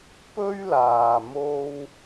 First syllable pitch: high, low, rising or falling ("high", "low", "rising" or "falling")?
high